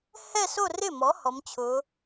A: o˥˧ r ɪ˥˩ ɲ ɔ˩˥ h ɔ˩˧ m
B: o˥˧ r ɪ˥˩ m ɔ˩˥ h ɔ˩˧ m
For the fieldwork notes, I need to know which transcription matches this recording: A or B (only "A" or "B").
B